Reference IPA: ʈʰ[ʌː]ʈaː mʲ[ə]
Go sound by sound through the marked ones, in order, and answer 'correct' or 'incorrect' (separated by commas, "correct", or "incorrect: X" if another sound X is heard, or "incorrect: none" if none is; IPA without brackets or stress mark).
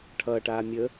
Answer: correct, correct